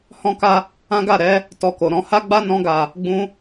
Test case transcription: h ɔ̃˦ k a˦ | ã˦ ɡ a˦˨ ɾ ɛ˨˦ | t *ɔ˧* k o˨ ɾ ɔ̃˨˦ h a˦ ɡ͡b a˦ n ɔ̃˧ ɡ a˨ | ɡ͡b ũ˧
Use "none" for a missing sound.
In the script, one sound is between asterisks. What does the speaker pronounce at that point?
ɔ˧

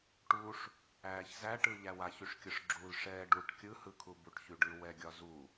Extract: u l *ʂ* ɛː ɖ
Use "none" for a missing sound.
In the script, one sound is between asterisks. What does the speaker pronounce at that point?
ʂ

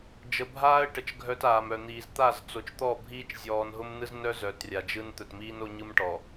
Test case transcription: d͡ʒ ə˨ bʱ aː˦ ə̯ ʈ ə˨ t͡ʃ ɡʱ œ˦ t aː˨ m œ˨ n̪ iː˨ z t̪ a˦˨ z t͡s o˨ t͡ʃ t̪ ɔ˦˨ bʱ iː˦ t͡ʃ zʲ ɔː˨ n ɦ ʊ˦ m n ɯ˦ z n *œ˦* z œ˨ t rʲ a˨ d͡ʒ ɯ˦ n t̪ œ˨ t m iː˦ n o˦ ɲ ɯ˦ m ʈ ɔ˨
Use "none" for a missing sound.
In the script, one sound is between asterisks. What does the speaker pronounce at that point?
œ˦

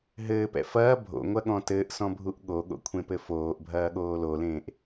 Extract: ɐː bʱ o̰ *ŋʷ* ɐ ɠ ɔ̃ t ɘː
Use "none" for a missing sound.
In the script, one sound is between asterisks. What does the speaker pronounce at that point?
ŋʷ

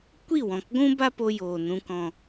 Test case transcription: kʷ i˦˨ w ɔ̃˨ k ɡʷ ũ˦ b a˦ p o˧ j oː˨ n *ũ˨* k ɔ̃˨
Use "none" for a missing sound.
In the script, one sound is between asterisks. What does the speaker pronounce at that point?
ũ˨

